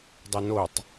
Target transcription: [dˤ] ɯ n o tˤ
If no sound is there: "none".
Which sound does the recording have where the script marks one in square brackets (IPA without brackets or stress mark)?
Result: dˤ